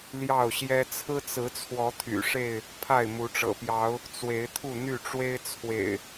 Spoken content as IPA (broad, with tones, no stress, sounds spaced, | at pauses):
l j ɑ˥˨ ʊ̯ ɕ j ɛ˦ t͡sʰ ɹ̩˦ t͡s ɹ̩˨˦ t͡sʰ w ɔ˨˦ t̪ʰ y̰˨˩ ʂ e˥˨ ɪ̯ | pʰ a˥˨ ɪ̯ m u˨˦ ʈ͡ʂ ɤ̰˨˩ p j ɑ˨˦ ʊ̯ | t͡s w e˨˦ ɪ̯ t̪ʰ u˥˨ n̪ y˥˨ ʈ͡ʂ w e˦ ɪ̯ t͡sʰ w ḛ˨˩ ɪ̯